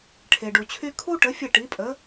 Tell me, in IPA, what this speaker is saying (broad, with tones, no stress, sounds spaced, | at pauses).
ʈʰ e˩ ɖ u˩ t͡ɕʰ y˥ kʰ u˥ ʈ ə˩˥ fʲ ə˥˩ ʈ i˩˥ pʼ ə˩˥